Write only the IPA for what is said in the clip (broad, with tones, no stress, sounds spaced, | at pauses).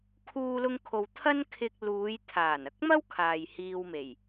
kʰ uː˧ l ʊ˧ ŋ kʰ o˨ w t̪ʰ ɐ˥ n kʰ ɪ˧ k̚ l uː˨˧ j t̪ʰ aː˨˩ n ɐ˧ k̚ m ɐ˥ w kʰ aː˨ j h iː˧ w m e˨˩ j